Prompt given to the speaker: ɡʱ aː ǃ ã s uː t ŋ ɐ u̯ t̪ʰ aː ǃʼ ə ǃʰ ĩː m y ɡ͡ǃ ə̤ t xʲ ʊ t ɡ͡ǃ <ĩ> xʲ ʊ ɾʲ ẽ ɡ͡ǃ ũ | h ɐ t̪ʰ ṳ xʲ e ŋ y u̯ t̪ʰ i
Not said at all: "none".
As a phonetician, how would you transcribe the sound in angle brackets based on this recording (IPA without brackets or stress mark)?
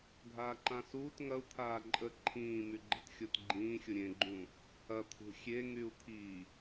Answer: ĩː